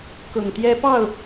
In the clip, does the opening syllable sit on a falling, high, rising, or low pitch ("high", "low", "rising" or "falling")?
low